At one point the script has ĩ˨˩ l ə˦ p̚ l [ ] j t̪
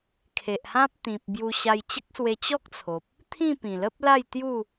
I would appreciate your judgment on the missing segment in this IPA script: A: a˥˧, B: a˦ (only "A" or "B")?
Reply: A